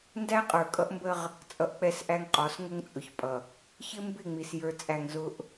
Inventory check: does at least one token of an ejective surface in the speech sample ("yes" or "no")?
yes